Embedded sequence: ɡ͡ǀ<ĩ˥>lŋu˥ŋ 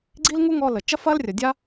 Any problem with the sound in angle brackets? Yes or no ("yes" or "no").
yes